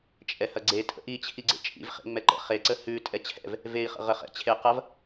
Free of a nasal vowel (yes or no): yes